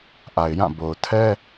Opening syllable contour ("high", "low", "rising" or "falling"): low